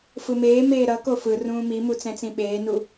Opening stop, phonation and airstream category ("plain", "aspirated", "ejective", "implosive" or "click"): plain